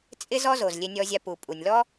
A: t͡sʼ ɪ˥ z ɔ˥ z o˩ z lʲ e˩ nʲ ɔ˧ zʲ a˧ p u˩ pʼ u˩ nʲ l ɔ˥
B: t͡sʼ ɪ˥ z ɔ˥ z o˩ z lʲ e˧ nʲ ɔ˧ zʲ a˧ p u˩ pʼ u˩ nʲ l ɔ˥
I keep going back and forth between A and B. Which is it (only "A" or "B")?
B